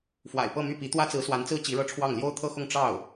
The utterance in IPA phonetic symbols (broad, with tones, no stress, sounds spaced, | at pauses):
f w a̰˨˩ ɪ̯ p ɤ˥˧ m y˥˩ p i˧˥ t̪ w ä˥ t͡s ɹ̩˧˥ s w a˧˥ n t͡s ɹ̩˥ t͡ɕ i˧˥ ɻ ɤ˥˧ ʈ͡ʂʰ w ɑ˥˩ ŋ l j o˥ ʊ̯ t̪ʰ ɤ˥˧ x ʊ˥˧ ŋ ʈ͡ʂ ɑ˥˩ ʊ̯